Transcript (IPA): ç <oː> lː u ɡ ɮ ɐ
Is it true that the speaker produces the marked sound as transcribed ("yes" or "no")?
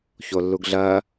no